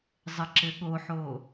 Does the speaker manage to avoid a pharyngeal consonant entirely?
no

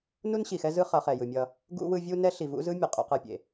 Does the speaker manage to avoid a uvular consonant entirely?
no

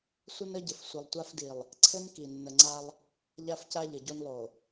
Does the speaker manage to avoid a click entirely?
no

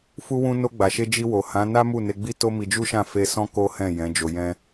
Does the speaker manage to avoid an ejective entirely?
yes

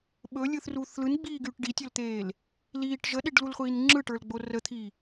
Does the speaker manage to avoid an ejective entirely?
yes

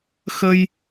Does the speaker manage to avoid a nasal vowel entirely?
yes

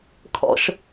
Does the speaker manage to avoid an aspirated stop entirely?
no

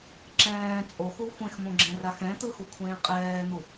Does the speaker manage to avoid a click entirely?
no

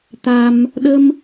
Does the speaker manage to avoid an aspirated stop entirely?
yes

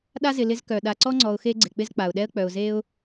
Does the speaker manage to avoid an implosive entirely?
no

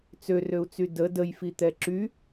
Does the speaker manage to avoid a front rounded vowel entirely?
no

